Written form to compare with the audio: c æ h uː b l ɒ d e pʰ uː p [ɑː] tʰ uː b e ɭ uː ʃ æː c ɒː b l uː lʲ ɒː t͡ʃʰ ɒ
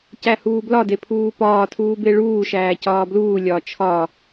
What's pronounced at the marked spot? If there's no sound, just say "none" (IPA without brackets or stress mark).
ɒː